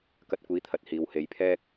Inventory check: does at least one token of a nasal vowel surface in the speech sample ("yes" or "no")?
no